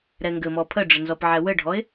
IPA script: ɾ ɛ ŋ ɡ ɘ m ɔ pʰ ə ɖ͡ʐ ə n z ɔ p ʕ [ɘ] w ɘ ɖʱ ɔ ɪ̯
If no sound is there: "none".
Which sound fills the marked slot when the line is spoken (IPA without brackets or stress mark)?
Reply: ɛ